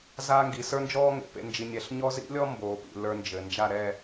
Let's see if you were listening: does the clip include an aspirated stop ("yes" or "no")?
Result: no